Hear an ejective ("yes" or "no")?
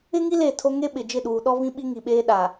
no